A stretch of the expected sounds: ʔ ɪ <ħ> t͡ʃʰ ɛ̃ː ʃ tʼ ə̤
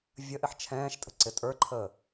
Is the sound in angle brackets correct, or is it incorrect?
correct